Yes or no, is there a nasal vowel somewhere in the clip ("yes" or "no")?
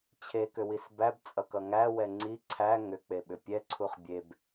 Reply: no